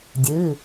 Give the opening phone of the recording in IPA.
dʲ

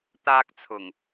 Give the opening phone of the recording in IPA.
t̪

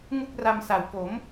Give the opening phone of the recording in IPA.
ŋ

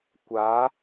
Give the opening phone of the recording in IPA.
kʷ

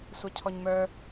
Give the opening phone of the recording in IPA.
sʷ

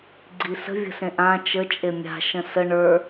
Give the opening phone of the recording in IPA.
ɡ͡ǀ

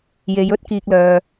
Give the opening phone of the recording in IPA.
j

